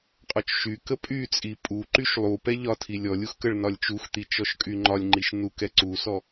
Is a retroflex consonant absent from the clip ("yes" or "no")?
no